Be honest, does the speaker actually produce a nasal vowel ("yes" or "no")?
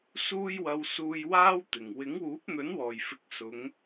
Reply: no